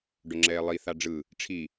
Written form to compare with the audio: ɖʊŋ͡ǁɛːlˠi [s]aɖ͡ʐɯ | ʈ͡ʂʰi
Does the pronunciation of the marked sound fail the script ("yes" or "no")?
yes